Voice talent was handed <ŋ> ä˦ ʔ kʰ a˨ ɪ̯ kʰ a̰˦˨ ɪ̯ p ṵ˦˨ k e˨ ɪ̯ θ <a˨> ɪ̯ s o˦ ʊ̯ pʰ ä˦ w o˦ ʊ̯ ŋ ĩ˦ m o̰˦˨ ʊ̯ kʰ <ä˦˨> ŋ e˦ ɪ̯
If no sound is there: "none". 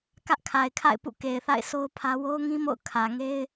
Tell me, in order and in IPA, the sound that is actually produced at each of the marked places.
k, a̰˦˨, ä˨

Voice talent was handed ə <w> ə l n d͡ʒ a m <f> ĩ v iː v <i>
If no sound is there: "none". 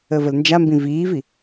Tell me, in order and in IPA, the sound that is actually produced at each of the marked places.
v, b, i

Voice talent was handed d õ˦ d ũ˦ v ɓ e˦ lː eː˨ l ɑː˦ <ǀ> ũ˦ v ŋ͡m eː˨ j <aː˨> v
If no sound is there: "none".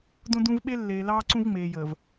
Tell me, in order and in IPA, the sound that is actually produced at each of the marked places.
ǀ, əː˨

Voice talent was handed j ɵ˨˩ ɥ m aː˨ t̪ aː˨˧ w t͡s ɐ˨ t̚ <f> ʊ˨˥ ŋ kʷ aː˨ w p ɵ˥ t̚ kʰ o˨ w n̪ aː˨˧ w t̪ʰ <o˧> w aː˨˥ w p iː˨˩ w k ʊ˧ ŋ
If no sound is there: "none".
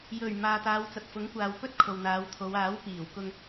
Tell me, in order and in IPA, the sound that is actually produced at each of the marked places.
f, o˨˧

